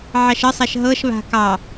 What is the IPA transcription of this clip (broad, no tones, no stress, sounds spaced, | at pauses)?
ʕ ɑ ʃ ə sˤ a ʃ ɦ ɤ ʃ β a̤ k ɑ